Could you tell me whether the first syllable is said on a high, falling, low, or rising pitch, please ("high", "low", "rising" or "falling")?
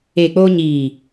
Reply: low